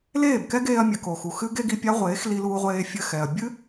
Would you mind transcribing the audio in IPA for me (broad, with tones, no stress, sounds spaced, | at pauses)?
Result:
l eː˦˨ b k ɛ˦ ɡ eː˧ ɐ̯ mʲ ɘ˨ k o˨ x u˨ x ɨ˦ ɡ e˦ ɡ i˧ pʲ a˦ ʁʷ eː˨˦ x l i˧ l uː˧ ʁʷ eː˧ fʲ ɘ˧ x ɛ˨ ɐ̯ bʲ ɨ˦